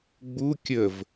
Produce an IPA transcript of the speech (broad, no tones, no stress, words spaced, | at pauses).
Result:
ɡ͡bu kʲəv